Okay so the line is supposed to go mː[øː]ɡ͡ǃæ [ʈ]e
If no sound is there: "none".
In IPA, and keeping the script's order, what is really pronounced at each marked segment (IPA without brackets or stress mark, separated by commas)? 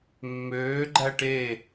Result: øː, ʈ